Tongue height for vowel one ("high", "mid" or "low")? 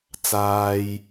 low